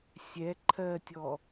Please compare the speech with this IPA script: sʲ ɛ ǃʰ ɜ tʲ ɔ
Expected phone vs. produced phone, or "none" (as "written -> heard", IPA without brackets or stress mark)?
none